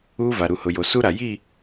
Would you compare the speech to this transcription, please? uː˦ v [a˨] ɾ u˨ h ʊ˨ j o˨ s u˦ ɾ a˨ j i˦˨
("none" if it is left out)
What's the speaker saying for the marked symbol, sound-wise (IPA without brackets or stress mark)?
a˨